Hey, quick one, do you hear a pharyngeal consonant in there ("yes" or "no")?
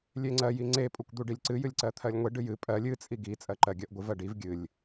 no